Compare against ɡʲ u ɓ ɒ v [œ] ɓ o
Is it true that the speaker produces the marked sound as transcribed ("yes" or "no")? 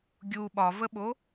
no